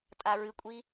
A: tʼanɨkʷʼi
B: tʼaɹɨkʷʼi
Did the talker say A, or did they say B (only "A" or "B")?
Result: B